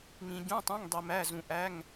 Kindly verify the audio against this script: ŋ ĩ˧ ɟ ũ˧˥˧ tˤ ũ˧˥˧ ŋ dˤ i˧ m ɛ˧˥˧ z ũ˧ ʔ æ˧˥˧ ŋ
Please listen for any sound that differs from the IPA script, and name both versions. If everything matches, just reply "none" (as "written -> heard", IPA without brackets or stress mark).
ɛ˧˥˧ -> æ˧˥˧